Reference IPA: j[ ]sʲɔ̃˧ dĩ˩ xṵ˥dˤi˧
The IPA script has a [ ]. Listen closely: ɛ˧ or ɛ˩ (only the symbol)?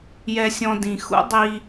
ɛ˧